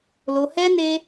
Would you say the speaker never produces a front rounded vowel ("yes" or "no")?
yes